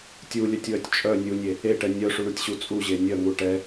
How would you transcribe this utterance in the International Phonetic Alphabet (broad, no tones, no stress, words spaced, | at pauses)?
tʲulʲœtʲwœtʲ t͡ʃʼœ nʲunʲe | eʈɛ nʲœʂuɳutʲɕu t͡sʼuʑe nʲœŋu ʈɛ